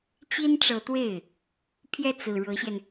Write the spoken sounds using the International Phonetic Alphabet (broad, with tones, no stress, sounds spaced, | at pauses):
t͡ɕ i˥ n ʈ͡ʂ ɤ˧˥ t̪ w e˥˩ ɪ̯ | pʰ j ɛ˥˩ t͡s ɹ̩˨˩ ɻ ɤ˧˥ ɕ j ɛ˧ n